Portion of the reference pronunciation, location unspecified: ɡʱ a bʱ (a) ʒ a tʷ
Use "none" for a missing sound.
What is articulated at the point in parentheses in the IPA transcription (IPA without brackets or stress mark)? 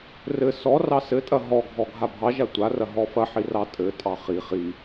ɑ